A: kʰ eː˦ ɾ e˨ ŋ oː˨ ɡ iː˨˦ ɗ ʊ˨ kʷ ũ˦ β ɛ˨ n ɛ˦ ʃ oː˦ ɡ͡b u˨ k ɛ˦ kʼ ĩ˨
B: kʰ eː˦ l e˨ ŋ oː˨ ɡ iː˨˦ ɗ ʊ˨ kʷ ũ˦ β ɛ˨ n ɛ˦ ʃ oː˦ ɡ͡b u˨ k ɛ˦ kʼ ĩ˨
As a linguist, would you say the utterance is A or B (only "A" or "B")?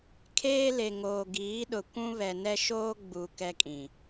B